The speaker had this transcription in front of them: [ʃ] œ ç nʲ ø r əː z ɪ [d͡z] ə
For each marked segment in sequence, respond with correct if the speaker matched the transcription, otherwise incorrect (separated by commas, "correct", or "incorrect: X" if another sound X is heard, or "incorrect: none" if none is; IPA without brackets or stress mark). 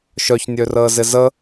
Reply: correct, incorrect: z